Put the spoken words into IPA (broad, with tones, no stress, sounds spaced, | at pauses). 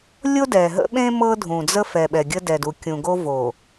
lʲ o˦ d ɛ˨ ɦ ə̰˦ ɓ ẽ˦ m ɤ˦ dʱ ũ˨ d͡z ə˦ f ɛ˨ ɓ ɛ˨ ɡʲ ə˦ d ɛ˨ d u˨ kʲ ũ˨ ɡ o˦ v o˨